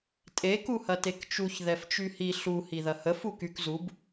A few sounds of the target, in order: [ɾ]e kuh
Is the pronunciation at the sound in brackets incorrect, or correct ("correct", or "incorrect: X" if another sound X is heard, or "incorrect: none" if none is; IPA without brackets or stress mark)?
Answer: incorrect: tʼ